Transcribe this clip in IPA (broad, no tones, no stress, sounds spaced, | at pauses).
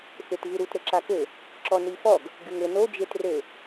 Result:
f e t v ɨ ɾ u t ɾ ɘ ǁ a k ɘ | ǁ ɔ n i f ɔ ɡ | ɡ ɨ ŋ ɘ n o d͡ʒ e t r ɘ